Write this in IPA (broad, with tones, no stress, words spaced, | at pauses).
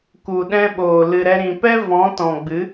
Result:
ku˨ɗɛ̃˧ɓoː˨ lɨ˨ɾɛ˧ɾĩ˨ pɛ˦ vɔ̃˨˦ tɔ̃˨ɡ͡bɨ˨˦